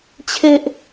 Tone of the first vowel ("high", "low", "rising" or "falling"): high